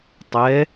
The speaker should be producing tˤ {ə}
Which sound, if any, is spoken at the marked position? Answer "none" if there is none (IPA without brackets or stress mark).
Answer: ɛ